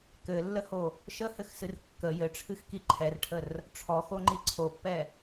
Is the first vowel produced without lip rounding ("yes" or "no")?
yes